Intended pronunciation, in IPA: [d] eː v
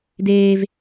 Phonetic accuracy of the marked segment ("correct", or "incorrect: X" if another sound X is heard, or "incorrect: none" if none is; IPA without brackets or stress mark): correct